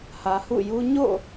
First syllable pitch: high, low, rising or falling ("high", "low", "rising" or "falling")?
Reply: low